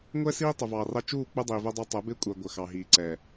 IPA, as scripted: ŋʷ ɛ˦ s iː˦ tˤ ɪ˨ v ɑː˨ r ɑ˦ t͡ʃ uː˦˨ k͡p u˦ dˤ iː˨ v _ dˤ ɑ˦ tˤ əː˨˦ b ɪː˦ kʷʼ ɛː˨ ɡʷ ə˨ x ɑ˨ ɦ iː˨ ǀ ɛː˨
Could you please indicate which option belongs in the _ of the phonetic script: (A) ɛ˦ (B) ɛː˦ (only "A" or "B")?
A